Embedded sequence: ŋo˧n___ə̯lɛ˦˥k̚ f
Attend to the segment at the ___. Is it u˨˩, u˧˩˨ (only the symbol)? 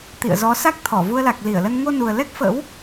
u˨˩